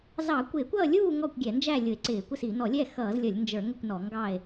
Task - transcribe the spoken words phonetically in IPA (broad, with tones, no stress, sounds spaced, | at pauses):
z ɑ˧˩˧ kʷ ɪː˧˩˧ kʷ ʌː˥˨ lʲ uː˥˨ ŋ ɔ˥˨ kʷ ɡʲ ɛ˧˩˧ n d͡ʒ æ˥˨ lʲ ʊ˧˩˧ e̯ ǀ ɪː˧˩˧ kʷ ɪ˥˨ s i˧˩˧ n ɔ˧˩˧ lʲ ɛ˥˨ x ʌː˧˩˧ z lʲ ʌ˧˩˧ lʲ n d͡ʒ ə˞˧˩˧ ŋ ʊ˥˨ kʷ n ɔ˧˩˧ ŋ ɡ ɑ˥˨ e̯